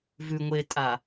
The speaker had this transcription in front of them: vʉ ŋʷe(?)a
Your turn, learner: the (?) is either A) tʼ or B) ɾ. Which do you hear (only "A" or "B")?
A